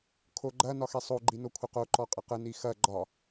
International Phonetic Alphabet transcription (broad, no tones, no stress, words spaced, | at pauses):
kʰoɡ͡ǃɐ nɒxesˤo ɡ͡ǃinokʷʰəqo ǃɔqʼəqə nixɐ ɡ͡ǃɒ